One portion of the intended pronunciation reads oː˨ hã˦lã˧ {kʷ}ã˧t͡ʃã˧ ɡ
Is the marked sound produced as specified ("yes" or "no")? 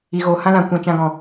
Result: yes